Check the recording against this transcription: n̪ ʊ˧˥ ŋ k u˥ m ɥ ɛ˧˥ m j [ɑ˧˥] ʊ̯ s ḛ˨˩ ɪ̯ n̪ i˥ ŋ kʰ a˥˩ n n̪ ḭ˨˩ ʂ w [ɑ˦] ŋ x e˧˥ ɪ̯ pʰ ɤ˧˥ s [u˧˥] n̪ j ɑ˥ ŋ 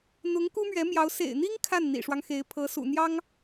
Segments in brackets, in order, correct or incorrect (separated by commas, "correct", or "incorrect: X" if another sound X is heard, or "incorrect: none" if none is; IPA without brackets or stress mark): correct, correct, incorrect: ṵ˨˩